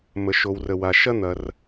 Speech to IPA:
mə˩ʃo˩wrə˩wa˩ ʃɐ˥n̪ɐ˩r

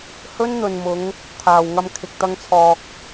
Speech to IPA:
hɵ˥nn̪ɵ˨nmʊ˨˧ŋ | t̪ʰaː˨wŋɐ˧m kʰɪ˨k̚t̪ɐ˧ŋt͡sʰɔː˨k̚

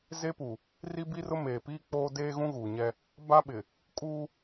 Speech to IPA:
ze˦pu˨ | ri˦bi˦rʊ˦ meː˨piː˦ k͡poː˦ deː˦ɣũ˦ɣuː˨ɲɛ˦ | ba˦ɓɪ˨ | kʼuː˦

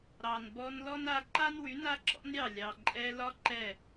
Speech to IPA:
ɾɑ˨nbɔ˧n lɔ˦na˧ ǃa˦nwy˨˦ na˦ǁɔ̰˦nɾʲɑ˦˨ lʲɑ˨ ǃʼɛ˧lɒ˦ ǃɛ˦˨

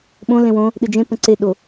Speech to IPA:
ɓõ lẽwõ | ɗɨd͡ʒẽ pə̃ǀe ɗo

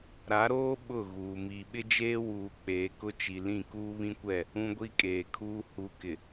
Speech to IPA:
ɾa˨˦ɾoː˦ ɓʊ˦˨ɣuː˨ miː˨ɓɪ˦d͡ʒeː˦ wuː˨k͡peː˨ kʊ˦t͡ʃi˨lĩ˦˨ kuː˦βĩ˦kʷɛ˦˨ | ũ˦ɡʷi˦kʼeː˨kʰuː˦ hu˨kɪ˨

